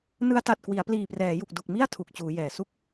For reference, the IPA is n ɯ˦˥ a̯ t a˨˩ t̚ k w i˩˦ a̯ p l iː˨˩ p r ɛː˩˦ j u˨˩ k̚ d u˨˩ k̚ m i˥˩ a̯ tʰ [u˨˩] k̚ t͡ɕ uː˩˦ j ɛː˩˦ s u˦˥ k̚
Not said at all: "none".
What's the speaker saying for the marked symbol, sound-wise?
u˨˩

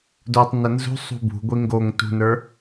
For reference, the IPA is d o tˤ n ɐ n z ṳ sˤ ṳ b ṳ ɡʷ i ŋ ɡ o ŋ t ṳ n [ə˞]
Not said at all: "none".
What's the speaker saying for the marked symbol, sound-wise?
ə˞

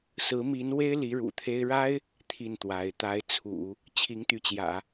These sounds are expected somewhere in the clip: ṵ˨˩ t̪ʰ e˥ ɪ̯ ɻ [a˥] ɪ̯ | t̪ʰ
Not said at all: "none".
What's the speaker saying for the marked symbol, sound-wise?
a˥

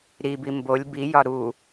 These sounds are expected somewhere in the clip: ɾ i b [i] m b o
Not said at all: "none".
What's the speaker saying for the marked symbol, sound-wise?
i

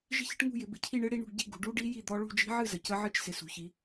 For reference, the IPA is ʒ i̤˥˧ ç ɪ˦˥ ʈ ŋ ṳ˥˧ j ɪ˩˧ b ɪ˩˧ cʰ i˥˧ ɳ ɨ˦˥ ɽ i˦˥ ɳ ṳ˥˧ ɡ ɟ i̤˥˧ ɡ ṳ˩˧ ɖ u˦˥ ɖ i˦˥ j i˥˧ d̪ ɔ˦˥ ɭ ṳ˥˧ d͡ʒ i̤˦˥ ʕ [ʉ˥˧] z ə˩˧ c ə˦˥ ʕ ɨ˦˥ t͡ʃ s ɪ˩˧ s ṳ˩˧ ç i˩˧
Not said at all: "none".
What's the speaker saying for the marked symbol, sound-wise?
ɨ˥˧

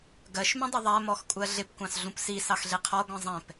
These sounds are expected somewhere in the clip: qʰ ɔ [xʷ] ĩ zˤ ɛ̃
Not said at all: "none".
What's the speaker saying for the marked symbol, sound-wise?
ɡʷ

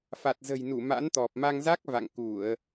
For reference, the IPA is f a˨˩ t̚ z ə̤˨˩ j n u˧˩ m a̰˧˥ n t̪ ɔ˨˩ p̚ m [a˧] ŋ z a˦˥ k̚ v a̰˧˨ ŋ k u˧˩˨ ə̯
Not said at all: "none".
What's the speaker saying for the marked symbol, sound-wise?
a˧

